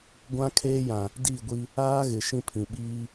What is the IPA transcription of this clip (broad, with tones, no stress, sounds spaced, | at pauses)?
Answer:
ɡʷ ã˦ kʰ eː˦ j ã˨ | d i˦˨ ɡʷ i˦ | aː˦ ɣ ɪ˨ ʃ ĩ˦ pʰ ĩ˨ ɓ iː˦